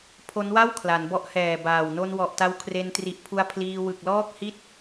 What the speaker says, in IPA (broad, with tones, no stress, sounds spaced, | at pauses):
pʰ o˦˥ n w a˥˩ w kʰ l a˩˦ n b ɔ˦˥ ʔ h ɛː˨˩ b aː˨˩ w n o˧ n w ɔ˨˩ ʔ t a˧ w kʰ r e˧ n t r i˨˩ ʔ pʰ u˧ a̯ pʰ l iː˧ w ɯ˨˩ k̚ l ɔː˥˩ k̚ h i˥˩ t̚